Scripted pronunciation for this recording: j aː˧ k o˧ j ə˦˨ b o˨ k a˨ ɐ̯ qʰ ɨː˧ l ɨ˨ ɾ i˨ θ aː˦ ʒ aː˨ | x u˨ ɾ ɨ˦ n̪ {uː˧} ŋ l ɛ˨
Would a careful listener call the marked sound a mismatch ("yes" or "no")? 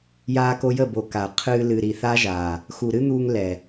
no